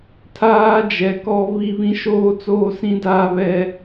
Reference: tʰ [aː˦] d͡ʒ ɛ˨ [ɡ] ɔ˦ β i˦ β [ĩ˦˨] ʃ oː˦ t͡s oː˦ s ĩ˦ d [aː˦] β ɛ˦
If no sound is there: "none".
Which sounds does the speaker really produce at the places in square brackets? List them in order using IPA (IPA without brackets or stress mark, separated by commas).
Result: aː˦, k, ĩ˦, aː˦